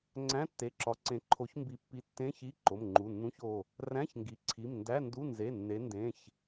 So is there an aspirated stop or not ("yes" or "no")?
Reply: yes